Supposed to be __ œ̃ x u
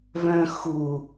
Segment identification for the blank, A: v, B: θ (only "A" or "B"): A